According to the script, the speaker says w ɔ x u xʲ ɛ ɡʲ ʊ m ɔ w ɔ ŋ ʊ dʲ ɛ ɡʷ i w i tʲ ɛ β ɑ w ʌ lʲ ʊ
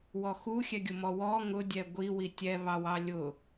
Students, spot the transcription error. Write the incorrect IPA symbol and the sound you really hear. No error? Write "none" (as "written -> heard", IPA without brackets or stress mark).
ʌ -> ɑ